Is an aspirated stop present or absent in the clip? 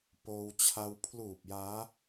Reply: present